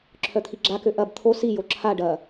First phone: ǁʰ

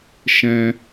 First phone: ʃ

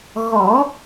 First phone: ɣ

